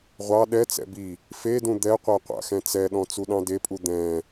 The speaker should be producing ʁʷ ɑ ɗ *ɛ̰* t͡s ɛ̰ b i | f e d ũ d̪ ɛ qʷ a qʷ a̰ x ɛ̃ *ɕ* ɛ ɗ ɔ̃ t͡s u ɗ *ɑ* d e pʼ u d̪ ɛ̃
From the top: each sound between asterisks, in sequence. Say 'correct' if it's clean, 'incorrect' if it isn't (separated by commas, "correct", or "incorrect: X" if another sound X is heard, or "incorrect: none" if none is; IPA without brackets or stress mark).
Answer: incorrect: ɛ, incorrect: t͡s, incorrect: ɑ̃